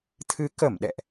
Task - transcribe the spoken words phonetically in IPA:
t̪ʰɨ˨˦ kə˧˩mɗɛ̰˧˨ʔ

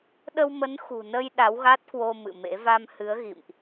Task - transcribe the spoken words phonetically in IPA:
ɗə˧wmə˨˦n xṳ˨˩nə˧j ɗa˨˦wɣa˦˥t̚kwo˧ mɨ̰˧˨mḛ˧˥ va˧mhɨ˨˦ə̯ɣḭ˧˨mʔ

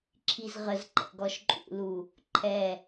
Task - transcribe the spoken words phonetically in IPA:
ǁʰizʁəzǃɛ̰ɡ ɔʃǃʼṵlu | ǃʰɛ

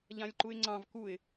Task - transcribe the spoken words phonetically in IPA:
ʎãlʲǃuɪ̯ŋ͡ǀɑ̃v kuɪ̯

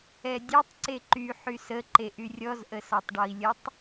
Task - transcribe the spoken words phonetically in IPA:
ɛdʲetˤ ǀeǃy ħysə ǃeʔyrʲɔz ʔəsɒtˤɖɔi̯lʲətˤ

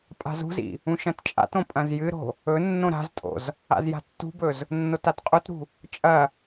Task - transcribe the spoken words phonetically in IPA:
pʼa̤zṳzḭ | ũʃɐ̃tt͡ʃʼa̰tõ pʼɐ̃zjɨɾo̤ | ɵ nːõɾa̤ztʼo̰z | a̰zja̤tːṳbɵz | nːotatqʼotɾṳ | t͡ʃʼɐ

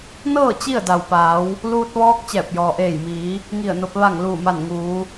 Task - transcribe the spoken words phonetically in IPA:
nɤː˥˨ t͡ɕi˥˨ə̯da˩wpaː˩˧w | luː˧t̚ʋɔː˧k̚ t͡ɕɛː˧˩p̚jɔː˩ʔeː˧˩jmiː˩˧ | ŋi˧˩ə̯no˧p̚ ʋa˧˩ŋ luː˧˩ma˧˩nŋuː˩˧

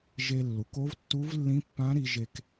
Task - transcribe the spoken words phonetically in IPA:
ʒe˧lːu˩˧k o˧˥vtːu˧˥vlːĩ˧˥pːã˧˥ ɾi˧ ʒe˧k

